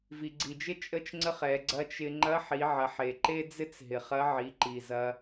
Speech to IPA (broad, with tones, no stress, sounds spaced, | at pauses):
v i˩ ɡ͡ǀ i˩ d͡ʒ ɪ˥ t͡ʃʼ ə˥ t͡ʃ ŋ͡ǀ ə˥ χ ɛ˩˧ ɡ͡ǀ ɐ˧˥ t͡ʃ ɪ˧ ŋ͡ǃ ɐ˧˥ ħ i˩˧ ʕ ɐ˩˧ ħ e˩ ǃ e˥ d͡z ɪ˥ t͡s ɦ ɪ˩ χ ɐ˧˥ ʕ i˩˧ ǃ i˩ z ɐ˧